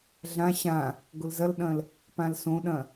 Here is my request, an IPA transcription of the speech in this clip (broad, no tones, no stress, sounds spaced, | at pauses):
ɮ ã ɕ ã | ɡ ʊ l z ɐ l ɗ ɐ̃ l | p ã l s õ ɗ ɐ̃